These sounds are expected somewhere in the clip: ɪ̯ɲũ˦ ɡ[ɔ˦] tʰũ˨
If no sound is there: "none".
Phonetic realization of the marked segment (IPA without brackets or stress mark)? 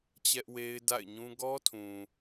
ɔ˦